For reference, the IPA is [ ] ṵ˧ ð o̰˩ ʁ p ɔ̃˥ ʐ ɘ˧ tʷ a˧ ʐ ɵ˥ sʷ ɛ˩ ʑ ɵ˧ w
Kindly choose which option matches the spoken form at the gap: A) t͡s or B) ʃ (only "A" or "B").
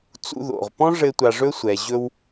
A